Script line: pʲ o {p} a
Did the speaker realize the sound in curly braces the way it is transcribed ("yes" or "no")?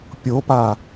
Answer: yes